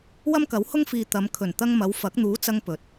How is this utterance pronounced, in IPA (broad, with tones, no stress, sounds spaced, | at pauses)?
w ɐ˥ m k ɐ˨˥ w h ʊ˥ ŋ f iː˨ t̪ ɐ˨˧ m kʰ ɵ˨˩ n t̪ ɐ˧ ŋ m ɐ˨˧ w f ɐ˨˥ k̚ n̪ uː˨˥ t͡s ɐ˧ ŋ p ɵ˨˥ t̚